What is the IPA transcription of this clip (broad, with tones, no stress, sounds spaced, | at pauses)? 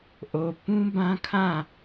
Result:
ʔ o˨ p ũ˦ b ã˦ kʰ ã˦˨